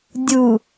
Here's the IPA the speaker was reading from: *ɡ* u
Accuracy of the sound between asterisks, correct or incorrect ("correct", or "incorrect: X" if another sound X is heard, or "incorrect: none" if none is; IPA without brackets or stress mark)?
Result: incorrect: dʲ